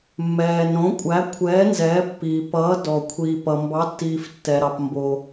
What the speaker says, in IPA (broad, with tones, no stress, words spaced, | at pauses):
mːɛː˩n ɾõ˩˧kʷʼæ˩˧kʷʰɛː˩˧ nzɛː˩˧ pːiː˩ pʌː˩˧dɔ˩ kʷʰiː˩pʌ˩mbɑ˩˧tːiː˩f tːɛ˩ɾɑ˩p mbo˩